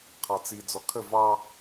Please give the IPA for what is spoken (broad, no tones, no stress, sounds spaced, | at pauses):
qʰ ɑ t͡s i d͡z ɔ kʰ ə v ɑ